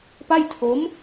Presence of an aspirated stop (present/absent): present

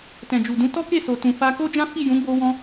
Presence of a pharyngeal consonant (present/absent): absent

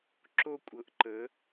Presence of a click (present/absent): present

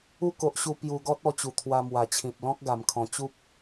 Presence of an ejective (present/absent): absent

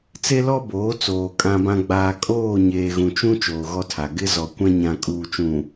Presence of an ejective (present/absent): present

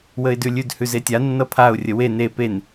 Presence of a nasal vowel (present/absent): absent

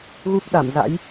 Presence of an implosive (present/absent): present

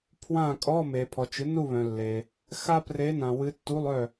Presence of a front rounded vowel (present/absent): present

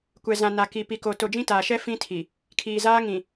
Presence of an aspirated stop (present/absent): present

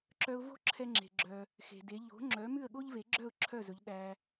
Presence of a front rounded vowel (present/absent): present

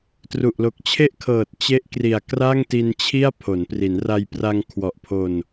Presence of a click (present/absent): absent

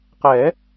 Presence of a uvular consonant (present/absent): present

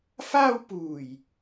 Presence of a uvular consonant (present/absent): absent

